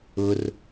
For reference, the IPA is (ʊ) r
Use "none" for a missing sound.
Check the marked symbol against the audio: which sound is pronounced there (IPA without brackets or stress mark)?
ʊ